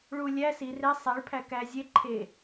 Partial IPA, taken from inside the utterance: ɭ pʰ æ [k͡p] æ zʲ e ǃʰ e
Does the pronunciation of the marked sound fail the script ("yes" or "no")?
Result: yes